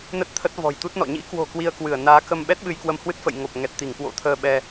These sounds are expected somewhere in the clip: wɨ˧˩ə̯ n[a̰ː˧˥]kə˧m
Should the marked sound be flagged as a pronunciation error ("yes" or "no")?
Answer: yes